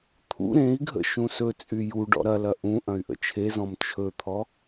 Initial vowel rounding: rounded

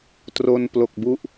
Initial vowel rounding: rounded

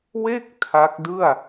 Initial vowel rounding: unrounded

